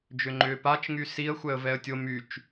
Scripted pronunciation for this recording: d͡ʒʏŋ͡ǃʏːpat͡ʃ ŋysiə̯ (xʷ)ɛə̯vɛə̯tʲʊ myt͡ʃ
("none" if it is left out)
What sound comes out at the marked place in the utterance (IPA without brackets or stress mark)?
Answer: xʷ